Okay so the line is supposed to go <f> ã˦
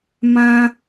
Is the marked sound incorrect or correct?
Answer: incorrect